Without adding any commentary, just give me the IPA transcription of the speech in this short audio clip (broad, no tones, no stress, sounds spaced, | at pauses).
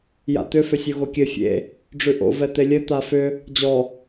j a̰ t̪ ʏ f ʏ sʲ o ɣ o kʲ ɘ fʲ ḛ | ɖ͡ʐ ʉ ʔ o̰ v ɛ t̪ e lʲ ɘ t̪ a f ʏ | d͡ʑ ɔ